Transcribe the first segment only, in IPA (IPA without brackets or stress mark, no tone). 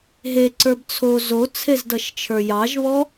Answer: ɦ